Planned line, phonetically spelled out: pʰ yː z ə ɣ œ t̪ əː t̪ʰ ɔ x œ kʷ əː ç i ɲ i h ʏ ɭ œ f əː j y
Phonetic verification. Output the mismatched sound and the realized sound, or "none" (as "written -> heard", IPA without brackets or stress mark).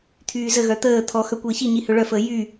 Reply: pʰ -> t̪ʰ